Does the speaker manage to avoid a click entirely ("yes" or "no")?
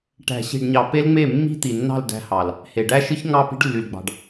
yes